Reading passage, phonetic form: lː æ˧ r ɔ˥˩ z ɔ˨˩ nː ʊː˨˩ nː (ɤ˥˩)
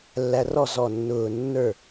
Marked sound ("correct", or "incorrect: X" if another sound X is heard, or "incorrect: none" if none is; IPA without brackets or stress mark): incorrect: ə˞˥˩